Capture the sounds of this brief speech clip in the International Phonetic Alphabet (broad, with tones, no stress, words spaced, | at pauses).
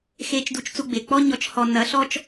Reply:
xe˧t͡ʃ du˧t͡ʃt͡su˧ ɡ͡be˩k͡pɔ˥ɲɔ˧˥t͡ʃhɔ˧ nːɐ˧˥ ɬɔ˥t͡ʃ